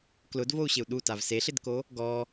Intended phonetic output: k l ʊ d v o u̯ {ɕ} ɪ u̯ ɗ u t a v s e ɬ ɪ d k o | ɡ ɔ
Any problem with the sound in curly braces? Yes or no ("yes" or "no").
no